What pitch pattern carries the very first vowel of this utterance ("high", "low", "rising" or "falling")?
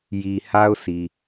low